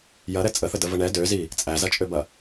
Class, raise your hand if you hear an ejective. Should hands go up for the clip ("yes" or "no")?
yes